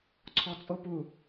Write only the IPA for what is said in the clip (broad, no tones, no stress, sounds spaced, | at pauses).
ǀʰ ɔ t͡sʼ o p u